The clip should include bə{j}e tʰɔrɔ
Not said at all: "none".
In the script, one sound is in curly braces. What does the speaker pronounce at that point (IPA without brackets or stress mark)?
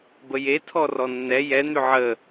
j